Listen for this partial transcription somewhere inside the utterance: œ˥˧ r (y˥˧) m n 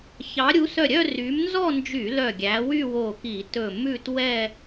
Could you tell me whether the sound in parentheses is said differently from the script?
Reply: yes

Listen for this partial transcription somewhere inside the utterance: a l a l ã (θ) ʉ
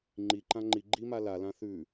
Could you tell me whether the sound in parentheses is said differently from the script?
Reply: no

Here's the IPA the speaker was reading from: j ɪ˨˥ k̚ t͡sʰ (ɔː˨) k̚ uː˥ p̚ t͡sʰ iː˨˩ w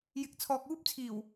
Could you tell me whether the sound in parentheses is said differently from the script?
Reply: no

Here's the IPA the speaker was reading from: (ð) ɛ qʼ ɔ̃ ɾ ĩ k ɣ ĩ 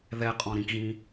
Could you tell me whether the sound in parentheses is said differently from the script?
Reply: no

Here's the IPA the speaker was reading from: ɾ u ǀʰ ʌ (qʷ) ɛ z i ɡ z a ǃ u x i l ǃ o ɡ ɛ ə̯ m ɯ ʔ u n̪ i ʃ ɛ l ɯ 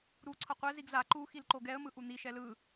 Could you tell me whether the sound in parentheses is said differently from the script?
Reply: no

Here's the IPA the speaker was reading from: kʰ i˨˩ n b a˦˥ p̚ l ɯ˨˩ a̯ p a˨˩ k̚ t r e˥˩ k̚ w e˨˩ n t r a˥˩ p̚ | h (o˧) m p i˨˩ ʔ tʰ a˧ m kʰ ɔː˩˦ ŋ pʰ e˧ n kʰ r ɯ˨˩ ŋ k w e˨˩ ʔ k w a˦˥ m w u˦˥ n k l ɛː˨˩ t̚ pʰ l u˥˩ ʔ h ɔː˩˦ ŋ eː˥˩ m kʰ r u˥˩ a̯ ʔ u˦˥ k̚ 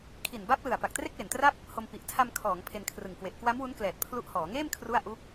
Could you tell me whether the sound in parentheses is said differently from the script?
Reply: no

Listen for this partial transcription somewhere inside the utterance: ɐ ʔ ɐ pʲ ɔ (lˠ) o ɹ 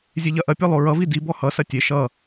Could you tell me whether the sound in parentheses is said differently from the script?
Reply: no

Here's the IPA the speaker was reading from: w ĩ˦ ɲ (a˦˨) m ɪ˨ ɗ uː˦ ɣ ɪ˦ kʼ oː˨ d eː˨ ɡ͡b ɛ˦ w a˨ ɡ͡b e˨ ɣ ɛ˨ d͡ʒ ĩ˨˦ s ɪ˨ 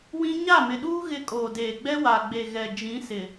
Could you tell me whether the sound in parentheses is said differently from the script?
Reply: no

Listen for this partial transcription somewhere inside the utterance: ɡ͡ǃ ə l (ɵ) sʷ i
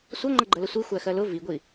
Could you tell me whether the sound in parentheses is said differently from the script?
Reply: yes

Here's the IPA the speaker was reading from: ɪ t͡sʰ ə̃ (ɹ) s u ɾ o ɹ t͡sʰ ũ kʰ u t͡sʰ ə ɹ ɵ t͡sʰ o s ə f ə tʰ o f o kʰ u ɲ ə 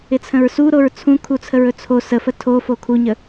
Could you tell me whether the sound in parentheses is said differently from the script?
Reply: no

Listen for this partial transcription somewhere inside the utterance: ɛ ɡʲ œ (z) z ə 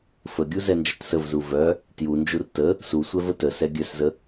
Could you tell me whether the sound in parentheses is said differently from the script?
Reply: yes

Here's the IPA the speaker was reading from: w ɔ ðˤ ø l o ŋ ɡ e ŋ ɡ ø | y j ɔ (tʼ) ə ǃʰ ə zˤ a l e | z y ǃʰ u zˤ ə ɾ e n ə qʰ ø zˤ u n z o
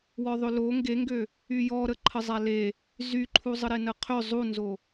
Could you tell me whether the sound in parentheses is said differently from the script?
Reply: yes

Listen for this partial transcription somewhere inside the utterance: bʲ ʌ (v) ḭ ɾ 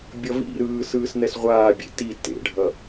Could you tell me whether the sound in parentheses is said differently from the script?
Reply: no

